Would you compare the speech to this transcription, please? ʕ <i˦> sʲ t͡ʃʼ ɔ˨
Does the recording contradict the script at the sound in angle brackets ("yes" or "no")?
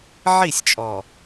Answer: yes